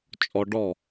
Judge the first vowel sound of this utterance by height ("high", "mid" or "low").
mid